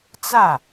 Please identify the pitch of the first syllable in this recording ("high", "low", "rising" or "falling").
falling